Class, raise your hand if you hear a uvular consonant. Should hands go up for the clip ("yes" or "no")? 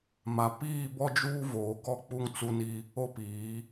no